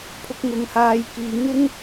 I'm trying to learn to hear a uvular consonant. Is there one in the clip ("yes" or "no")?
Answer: no